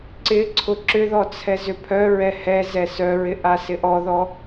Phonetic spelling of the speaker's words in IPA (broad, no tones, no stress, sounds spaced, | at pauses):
ǀ ɪ ǀʰ ʊ ǁ ʏ ð ɔ t͡sʰ ɛ z ʏ pʰ œ ɹ ɛ h ɛ z ɛ s œ ɹ ɪ ʔ a s ɪ ʔ ɔ ð ɔ